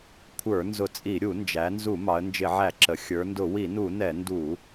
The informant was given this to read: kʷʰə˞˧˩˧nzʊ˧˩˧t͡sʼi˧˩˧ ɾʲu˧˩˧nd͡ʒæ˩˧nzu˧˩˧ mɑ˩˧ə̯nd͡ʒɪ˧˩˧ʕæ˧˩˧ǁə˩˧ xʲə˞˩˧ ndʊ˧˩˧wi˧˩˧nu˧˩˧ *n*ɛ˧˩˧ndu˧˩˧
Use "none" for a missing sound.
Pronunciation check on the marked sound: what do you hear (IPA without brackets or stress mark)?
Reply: n